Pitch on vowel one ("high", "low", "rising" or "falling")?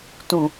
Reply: low